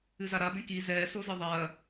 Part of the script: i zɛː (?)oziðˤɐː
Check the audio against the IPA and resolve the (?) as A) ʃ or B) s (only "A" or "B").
B